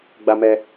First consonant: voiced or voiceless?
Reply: voiced